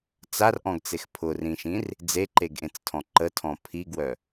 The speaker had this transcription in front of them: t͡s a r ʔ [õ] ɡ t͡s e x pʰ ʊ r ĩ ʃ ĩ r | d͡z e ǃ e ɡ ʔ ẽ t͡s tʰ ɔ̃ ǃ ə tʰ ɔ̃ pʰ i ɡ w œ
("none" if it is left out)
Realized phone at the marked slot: ɔ̃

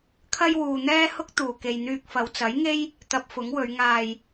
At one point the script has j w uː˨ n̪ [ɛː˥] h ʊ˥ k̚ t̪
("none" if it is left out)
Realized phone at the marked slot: ɛː˥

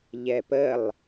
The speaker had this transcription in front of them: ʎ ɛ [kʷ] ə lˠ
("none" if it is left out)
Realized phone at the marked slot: p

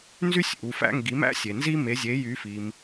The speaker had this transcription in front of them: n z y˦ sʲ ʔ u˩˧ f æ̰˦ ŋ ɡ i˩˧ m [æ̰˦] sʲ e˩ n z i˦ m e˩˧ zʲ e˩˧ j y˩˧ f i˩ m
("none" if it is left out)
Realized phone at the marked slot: æ̰˦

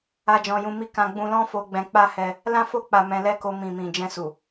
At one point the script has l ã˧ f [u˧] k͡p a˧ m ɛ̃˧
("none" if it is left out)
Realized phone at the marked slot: o˧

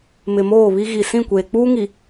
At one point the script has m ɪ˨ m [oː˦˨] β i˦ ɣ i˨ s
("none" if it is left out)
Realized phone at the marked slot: oː˦˨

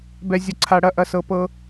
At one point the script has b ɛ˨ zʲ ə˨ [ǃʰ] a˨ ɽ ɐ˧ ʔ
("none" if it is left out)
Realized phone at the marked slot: ǀʰ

